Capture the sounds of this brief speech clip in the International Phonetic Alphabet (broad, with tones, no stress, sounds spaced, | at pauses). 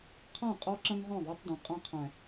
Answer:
qʰ ã˦˨ qʼ ɔ˦ ǁ ɐ̃˦ ŋ ʁ ɔ̃˦˨ ðˤ ɐ˦ tˤ dˤ ẽ˨ qʼ ɐ̃˦ qʰ æ̃˨